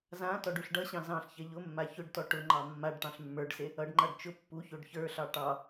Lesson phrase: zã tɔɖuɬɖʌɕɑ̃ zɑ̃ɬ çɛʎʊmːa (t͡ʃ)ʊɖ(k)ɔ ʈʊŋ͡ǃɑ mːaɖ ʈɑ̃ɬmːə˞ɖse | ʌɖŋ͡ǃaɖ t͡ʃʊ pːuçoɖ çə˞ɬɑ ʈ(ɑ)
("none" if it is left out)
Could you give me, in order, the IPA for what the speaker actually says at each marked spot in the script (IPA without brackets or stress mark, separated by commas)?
ç, t, ɑ